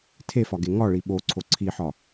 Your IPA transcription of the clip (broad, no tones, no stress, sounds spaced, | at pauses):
tʰ e f ɒ ɡ e ŋ ɒ ɭ i ɓ o ǀʰ o ǀʰ i ħ ɒ